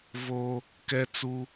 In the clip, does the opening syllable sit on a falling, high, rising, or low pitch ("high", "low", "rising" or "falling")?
low